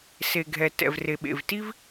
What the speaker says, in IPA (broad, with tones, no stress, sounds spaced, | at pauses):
s e˩ ɡʱ ɛ˩ t ɛ̰˩ v r e˩ ɓ ḛ˩ v t i˥ v